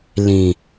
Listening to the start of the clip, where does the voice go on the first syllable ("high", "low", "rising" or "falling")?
low